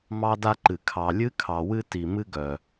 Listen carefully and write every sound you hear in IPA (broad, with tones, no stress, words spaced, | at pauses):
mɑ˦da˦ǃɨ˨ kʰɑ˨lʲɨ˦kʰɑ˨wɨ˦ ti˨mɨ˦ɡœ˨